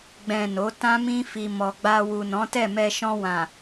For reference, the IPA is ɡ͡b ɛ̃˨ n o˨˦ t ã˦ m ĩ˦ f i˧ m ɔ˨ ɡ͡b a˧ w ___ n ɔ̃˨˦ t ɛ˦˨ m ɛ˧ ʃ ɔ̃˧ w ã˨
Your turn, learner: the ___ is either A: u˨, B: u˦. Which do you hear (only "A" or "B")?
A